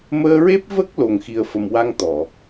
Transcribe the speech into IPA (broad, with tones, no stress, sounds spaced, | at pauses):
m əː˧ ɹ e˦˥ p̚ v ə˦˥ k̚ l o˨˩ ŋ x i˨˩ ə̯ f ə˨˩ m w a˧ ŋ t̪ ɔ˨˩˨